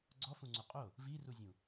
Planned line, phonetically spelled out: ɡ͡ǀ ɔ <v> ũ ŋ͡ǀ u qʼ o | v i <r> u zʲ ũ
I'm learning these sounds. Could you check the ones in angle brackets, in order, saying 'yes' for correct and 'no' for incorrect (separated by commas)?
no, yes